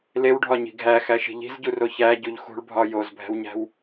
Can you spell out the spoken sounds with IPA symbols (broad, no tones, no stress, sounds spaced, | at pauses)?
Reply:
l e w ɖʱ ɒ ɲ i̤ ɡʱ æ x æ ʃ i̤ ʎ i̤ z ɟ u r o ç æ ɟ u ʎ x ṳ ɭ bʱ ɒ j o z bʱ æ̤ w ɲ æ̤ w